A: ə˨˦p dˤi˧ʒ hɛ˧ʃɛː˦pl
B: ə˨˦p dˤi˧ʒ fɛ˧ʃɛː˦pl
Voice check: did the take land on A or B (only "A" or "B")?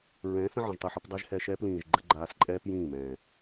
A